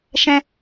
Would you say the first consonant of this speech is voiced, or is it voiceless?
voiceless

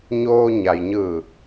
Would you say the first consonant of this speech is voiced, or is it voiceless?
voiced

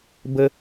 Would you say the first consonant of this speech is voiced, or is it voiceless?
voiced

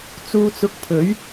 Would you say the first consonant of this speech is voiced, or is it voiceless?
voiceless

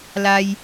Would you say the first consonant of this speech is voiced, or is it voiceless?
voiced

